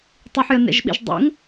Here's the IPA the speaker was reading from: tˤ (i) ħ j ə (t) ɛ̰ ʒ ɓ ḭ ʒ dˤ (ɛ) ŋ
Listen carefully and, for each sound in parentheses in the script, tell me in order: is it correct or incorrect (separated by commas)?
correct, incorrect, incorrect